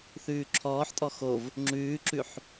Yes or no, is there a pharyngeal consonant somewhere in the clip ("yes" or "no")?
yes